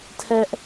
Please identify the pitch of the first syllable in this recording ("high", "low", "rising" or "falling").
high